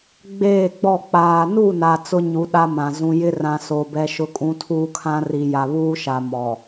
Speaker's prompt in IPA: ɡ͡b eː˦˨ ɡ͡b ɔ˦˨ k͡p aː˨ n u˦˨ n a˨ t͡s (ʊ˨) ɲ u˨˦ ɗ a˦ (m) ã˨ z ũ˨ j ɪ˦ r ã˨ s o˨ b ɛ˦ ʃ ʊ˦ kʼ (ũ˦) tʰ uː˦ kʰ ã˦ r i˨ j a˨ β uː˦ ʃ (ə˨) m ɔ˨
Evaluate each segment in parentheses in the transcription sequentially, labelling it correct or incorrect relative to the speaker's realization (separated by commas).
incorrect, correct, correct, incorrect